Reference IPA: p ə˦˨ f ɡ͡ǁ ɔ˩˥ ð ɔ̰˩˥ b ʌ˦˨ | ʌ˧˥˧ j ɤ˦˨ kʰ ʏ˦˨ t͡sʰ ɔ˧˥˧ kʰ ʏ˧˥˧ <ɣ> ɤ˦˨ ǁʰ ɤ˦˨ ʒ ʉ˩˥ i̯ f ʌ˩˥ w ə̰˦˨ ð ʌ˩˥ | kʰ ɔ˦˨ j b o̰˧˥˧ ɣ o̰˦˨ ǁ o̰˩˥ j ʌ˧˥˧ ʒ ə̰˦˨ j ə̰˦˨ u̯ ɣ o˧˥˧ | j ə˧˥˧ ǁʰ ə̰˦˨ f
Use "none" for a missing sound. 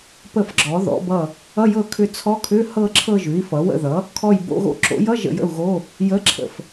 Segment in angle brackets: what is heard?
h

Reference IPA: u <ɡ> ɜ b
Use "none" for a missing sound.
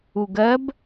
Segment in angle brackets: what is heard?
ɡ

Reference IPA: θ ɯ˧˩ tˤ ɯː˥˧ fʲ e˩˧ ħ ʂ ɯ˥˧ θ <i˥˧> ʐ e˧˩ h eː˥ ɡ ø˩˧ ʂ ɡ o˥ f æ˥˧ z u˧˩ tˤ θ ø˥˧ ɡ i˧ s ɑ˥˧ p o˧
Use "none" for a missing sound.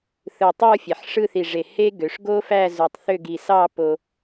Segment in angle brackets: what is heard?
i˧˩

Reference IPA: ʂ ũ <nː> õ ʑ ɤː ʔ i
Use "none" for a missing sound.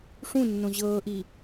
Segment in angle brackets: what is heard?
nː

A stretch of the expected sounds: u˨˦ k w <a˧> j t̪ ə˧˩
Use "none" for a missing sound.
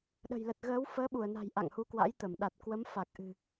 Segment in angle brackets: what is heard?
a̰˧˥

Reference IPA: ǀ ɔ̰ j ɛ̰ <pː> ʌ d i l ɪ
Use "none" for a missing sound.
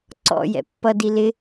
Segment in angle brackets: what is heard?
pː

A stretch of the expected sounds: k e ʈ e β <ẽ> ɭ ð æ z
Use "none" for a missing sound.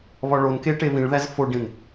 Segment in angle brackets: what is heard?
ĩ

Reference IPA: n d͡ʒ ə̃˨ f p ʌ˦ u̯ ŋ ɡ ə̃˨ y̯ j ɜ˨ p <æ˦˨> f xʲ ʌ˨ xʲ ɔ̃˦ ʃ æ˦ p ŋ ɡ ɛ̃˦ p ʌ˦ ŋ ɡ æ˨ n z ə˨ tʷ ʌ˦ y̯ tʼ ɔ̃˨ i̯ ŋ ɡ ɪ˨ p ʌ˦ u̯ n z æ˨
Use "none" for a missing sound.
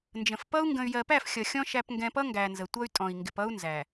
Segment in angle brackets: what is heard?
æ˦˨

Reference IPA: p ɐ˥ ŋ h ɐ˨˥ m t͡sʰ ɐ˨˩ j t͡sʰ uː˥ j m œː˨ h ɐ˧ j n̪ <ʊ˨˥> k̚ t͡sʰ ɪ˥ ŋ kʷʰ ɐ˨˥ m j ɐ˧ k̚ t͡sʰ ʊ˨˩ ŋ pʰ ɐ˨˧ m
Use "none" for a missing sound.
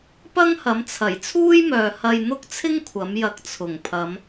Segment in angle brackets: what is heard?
ʊ˥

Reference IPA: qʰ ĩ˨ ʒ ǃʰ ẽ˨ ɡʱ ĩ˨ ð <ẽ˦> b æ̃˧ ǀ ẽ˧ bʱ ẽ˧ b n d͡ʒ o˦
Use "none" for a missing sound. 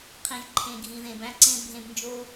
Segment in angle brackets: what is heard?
ẽ˨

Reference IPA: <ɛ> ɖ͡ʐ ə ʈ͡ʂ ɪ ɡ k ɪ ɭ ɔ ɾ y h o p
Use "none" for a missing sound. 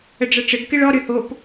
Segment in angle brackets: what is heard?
ə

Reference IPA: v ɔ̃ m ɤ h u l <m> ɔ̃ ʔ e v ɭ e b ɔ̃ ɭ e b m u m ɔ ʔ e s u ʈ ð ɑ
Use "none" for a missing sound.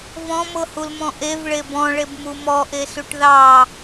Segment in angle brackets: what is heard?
m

